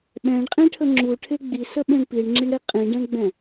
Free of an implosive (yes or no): no